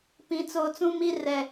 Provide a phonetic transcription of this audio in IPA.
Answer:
pĩ˨t͡soː˨t͡sũ˦mi˦ rɛ˨

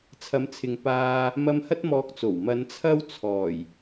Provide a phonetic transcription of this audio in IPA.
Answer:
t͡sʰɐ˨˧mt͡sʰɪ˨ŋ paː˧ | mɐ˧mhɐ˥t̚ mɔː˧k̚t͡so˨˩w mɐ˨˧n t͡sʰɐ˥wt͡sʰɔː˨˩j

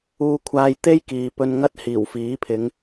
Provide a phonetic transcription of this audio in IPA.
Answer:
uː˧kʷʰaː˧jt̪e˥j kiː˨pɵ˧nŋɐ˥t̚ hiː˨˩wfiː˨˥pʰɪ˨˧ŋ

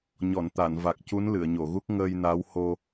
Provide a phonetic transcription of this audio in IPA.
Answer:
ɲɔ˨˩˨nt̪a˨˩˨nva˨˩k̚ cu˧˥nlɨ˨˩˨ə̯ɲo˨˩˨ɣu˦˥k̚ ŋəː˧jna˧˥w ho˧

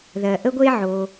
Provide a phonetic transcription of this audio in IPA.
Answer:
ðɜ˨ʔə˦ɡʷe˦ ʕo˨

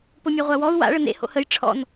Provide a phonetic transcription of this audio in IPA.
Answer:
pomʲaʁʷawɔu̯ wa̰ɭə nḛ ho̰həj ʈ͡ʂʰɔ̰n

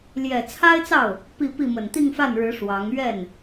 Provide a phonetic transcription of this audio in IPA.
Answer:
ljɛ˨˩t͡sʰa˥ɪ̯t͡sɑ˥˩ʊ̯ | pi˥˧ pi˥˩ mə˨˩nt̪i˥˧ŋfa˥˩nɻɻ̩˧˥ ʂwɑ˧˥ŋ ɥɛ˥˩n

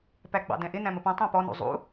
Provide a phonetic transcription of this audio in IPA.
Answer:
pæɡ͡bɑ̰dɛ̃ʔɪ næ̃məpɛ̃ tˤæ̃pɔ nṵzˤṵ

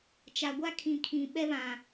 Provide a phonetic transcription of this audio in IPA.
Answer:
t͡ʃa˨ɡʷa˦kʰĩ˨ kʰĩ˨ɓɛ˦βã˨

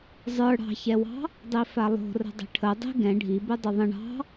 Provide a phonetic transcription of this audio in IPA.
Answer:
zˤə˞ ɽɑ̤çɛwɑ̤ | dˤifalˠo̤ rə̤dˤə̤ʈʰə dˤi̤ ɡɛ̃ ɖʱibe dˤoðˤə̃ ɳɑ̤

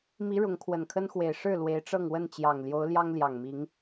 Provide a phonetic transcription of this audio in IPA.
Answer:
mi˨˦ ɻʊ˨˦ŋkʰwə˨˩nkʰə˦nxwe˨˩ɪ̯ ʂɻ̩˥˨ lwe˨˦ɪ̯ʈ͡ʂɤ˥˨ŋwə˥˨nt͡ɕjɑ˨˩ŋ ljo˨˦ʊ̯ljɑ˦ŋ ljɑ˨˩ŋmi˨˦ŋ

